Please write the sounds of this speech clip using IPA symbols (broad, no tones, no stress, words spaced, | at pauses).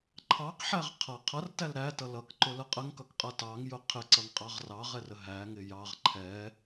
ǃʰɑqħæʁ qʰʌ qʰʌrtæl ɾætʌ lʌkǃʊlə qʼəŋkʌkqʼʌ tɑŋjʊ qʰɪǀʌŋqʼɑʁ rɑʁɛrə ɦæŋɪ jɑʁ ǃʰɛ